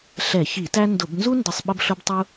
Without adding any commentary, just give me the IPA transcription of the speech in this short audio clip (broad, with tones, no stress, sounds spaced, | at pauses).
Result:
ɬ ɛ˧˩˧ ç i˧˩˧ t æ˥ n d ʊ˧˩˧ b n z u˥ n d ə˧˩˧ sˤ ɓ ə˥ b ɬ ʊ˥ b tˤ u˥